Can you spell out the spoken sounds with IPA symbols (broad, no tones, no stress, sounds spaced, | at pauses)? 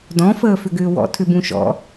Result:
d ɔ̃ f əː f ʏ ɡ ʏː w ɔ̰ tʰ ʏ b ũ ʃ ɔ̰